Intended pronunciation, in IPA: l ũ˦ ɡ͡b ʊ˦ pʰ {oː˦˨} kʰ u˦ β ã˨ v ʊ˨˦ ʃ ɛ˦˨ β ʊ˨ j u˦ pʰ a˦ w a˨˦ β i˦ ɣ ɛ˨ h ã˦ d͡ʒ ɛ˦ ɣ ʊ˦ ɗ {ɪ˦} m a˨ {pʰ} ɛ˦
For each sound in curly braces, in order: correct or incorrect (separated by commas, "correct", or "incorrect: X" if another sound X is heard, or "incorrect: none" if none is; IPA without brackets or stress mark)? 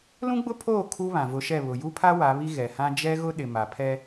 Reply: correct, incorrect: ɪ˨, correct